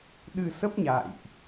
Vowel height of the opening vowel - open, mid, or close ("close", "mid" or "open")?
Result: close